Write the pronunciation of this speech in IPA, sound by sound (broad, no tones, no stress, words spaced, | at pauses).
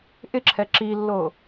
ʔɪǁʰɛ ǁilːo